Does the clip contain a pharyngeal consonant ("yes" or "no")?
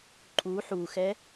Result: yes